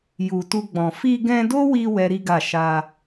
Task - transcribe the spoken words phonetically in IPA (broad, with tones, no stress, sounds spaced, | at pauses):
j u˨ t u˧ ɡ͡b ɔ̃˨ f i˧ ɡ ɛ̃˧ d o˦ w i˧ w ɛ˦ ɾ i˦ ɡ a˦˨ ʃ a˧